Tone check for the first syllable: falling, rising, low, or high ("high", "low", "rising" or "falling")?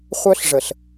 high